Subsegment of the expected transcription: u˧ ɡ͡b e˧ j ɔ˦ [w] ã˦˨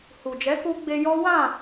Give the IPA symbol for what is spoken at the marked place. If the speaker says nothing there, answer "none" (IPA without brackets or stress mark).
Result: w